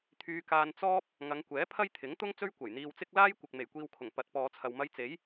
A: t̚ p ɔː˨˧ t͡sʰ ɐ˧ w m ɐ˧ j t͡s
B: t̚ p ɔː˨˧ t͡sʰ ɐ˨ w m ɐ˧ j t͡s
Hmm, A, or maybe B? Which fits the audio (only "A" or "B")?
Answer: B